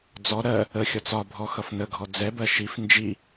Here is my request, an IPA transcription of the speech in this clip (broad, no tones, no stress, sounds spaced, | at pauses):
d͡z ɔ ɾ ɜ | ə xʲ ɒ t͡s ɒ bʱ ɔ x ʌ f n ə ɡʱ ɔ d͡z ɛ b ɜ ʃ i f n d͡ʒ i